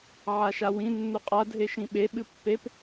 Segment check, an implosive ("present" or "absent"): present